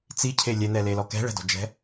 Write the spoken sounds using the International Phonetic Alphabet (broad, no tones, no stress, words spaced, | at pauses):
t͡sicʰe lʲɛn̪ɛlelɔ kɛ̤ɭɛ̤dɔ̤d͡ʒɛ̤